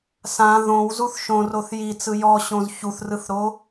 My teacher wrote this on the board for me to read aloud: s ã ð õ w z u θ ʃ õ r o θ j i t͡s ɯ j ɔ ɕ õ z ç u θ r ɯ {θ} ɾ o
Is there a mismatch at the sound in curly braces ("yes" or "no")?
no